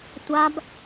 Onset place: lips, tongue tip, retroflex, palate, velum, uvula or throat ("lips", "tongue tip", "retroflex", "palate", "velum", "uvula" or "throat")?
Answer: tongue tip